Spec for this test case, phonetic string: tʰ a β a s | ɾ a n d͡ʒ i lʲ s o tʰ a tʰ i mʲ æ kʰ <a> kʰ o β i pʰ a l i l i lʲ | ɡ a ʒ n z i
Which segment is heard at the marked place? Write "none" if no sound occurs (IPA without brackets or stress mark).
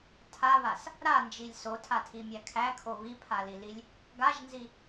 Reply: æ